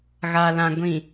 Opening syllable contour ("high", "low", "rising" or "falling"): low